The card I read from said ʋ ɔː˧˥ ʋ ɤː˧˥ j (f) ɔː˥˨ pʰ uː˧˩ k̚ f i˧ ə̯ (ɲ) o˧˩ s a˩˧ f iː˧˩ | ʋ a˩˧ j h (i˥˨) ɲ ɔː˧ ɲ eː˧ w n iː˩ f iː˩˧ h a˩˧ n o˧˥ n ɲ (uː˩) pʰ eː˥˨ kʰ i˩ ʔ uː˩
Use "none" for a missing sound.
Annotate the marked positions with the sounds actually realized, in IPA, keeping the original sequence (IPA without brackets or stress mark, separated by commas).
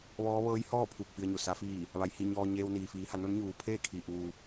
h, ɲ, i˧˩, uː˩